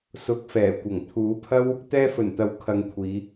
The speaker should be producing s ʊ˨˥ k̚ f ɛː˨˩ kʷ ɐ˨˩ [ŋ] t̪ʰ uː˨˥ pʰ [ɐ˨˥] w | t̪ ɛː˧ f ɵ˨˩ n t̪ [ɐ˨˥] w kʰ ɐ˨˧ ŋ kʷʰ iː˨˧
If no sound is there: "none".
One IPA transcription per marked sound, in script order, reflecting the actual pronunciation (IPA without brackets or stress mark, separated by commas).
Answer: ŋ, ɐ˥, ɐ˨˥